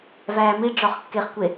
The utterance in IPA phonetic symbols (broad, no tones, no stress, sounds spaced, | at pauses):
v æː m i ɖ͡ʐ ɒ χ kː e χ kʷ e